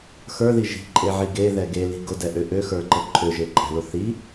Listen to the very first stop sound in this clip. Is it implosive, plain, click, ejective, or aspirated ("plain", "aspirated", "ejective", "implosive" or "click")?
click